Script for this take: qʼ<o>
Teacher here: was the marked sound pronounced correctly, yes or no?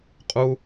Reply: no